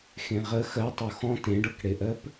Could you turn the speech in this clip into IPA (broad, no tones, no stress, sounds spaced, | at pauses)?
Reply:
x ẽ ʁ ə x ɜ tˤ o x ɔ̃ t ẽ ɖ ɤ k ɽ e ʔ ɜ p